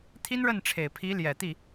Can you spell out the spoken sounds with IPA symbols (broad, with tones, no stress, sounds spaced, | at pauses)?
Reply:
t̪ʰ i˥ n ɻ ə˥˩ n ʈ͡ʂʰ e˨˩ ɪ̯ pʰ i˧˥ l j ɛ˨˩ t̪ i˥˩